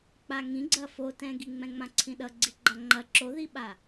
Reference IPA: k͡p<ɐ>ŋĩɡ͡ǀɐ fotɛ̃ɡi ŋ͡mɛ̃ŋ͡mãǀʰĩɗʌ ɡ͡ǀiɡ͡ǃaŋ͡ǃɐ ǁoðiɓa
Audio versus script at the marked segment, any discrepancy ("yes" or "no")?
yes